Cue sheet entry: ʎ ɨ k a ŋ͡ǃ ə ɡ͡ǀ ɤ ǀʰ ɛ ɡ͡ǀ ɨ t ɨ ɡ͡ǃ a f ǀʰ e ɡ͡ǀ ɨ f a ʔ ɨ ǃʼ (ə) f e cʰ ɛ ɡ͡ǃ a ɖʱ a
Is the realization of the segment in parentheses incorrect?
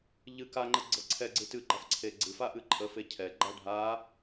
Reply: no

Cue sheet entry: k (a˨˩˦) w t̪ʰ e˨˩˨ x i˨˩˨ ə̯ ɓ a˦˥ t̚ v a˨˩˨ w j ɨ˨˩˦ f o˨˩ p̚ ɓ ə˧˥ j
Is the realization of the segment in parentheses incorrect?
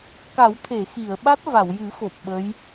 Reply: no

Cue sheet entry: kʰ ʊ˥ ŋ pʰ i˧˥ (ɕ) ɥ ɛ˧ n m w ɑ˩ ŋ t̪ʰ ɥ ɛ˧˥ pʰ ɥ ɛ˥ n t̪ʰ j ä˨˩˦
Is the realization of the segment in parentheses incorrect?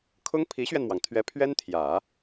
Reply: no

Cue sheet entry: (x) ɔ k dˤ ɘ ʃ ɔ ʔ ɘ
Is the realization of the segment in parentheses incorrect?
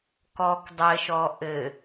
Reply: yes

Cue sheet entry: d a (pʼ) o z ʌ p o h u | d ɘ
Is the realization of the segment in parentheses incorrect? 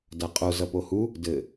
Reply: yes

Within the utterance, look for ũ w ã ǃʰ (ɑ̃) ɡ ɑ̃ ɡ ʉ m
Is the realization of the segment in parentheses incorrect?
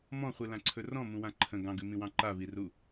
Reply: yes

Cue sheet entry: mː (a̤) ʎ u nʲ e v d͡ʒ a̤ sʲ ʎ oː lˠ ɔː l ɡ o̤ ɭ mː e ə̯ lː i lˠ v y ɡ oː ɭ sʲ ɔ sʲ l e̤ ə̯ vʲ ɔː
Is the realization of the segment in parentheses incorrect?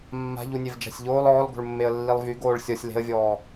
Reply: no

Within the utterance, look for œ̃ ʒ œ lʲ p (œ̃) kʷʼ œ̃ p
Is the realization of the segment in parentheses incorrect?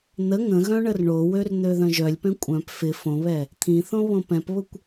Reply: yes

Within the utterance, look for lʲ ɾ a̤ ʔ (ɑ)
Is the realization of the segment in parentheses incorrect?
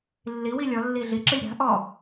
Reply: yes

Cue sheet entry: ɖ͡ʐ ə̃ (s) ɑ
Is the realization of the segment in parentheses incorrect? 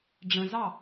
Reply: yes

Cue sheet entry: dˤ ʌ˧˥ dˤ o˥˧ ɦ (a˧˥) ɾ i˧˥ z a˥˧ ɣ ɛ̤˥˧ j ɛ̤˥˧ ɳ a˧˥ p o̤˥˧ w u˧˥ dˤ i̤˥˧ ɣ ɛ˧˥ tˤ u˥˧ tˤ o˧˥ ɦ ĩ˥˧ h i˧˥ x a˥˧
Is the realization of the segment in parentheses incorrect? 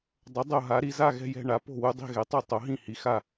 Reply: no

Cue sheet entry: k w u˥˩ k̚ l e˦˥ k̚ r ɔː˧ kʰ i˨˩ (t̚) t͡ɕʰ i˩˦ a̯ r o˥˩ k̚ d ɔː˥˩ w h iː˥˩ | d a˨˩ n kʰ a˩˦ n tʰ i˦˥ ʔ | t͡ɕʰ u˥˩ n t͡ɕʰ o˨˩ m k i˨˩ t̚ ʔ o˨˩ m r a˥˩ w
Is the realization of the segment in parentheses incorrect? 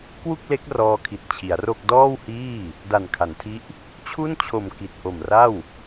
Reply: no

